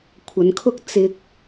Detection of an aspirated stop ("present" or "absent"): present